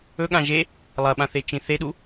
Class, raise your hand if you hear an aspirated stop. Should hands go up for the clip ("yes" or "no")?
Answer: no